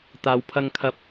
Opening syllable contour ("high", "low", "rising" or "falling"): low